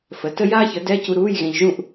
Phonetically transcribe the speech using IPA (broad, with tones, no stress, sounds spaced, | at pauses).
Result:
f ə˩˥ t ə˥ j aː˥ ç ə˩˥ d ɛ˧˥˧ c u˧ ɾ uː˧˥˧ j ɣ ẽ˧ ʎ ʒ ũ˥˨ ʔ